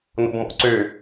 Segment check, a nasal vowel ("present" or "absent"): absent